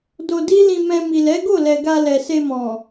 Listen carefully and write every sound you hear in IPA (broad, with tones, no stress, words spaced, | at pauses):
do˧ di˦lĩ˧mɛ̃˧ mi˨lɛ˨˦ɡo˦˨lɛ˨ ɡa˧lɛ˨se˧mɔ̃˨